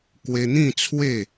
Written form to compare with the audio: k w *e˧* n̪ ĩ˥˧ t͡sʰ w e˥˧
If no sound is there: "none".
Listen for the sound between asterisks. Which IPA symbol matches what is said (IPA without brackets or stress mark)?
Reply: e˧